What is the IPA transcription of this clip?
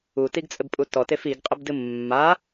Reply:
u t i ɡ t͡sʼ ɘ b pʼ u t ɔ t e f i ɡ qʼ ɘ b d ɨ mː a

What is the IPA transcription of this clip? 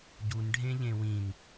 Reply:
ɟ u n ɖʱ ẽ ʎ ẽ w ĩ n

